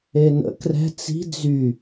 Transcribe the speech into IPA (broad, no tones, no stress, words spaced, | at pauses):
enə̰ krɛ̤ t͡si̤ d͡zy